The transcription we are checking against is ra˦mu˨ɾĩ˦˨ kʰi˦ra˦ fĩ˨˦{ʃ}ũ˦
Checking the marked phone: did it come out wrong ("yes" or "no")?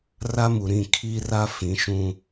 no